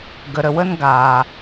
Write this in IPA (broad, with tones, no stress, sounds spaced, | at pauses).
ɡ ə˨ ɾ ə˨ w ə˧ n ɡ aː˨